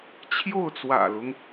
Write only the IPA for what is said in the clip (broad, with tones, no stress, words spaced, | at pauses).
t͡ɕʰjo˥˩ʊ̯t͡swä̰˨˩lʊ˦ŋ